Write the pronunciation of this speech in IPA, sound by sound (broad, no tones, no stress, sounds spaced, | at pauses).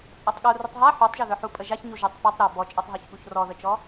t͡sʼ a tˤ ɠ u r u tˤ ɦ a ħ u tˤ ʒ œ ð œ ħ u pʼ ə ʒ a ç ɲ u ʒ œ tˤ p ɔ tˤ ɾ œ b ɔ t͡ʃʼ ɔ tˤ ɦ œ ç ɠ u ç r ɔ ð ə t͡ʃ ɔ